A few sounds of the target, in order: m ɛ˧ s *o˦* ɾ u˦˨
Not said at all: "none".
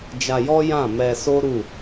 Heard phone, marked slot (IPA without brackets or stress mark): o˦